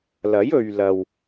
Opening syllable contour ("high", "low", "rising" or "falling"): rising